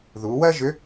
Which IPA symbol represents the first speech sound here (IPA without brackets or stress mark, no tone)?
ð